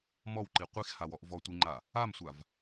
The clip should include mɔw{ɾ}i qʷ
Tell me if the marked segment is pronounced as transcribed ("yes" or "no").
no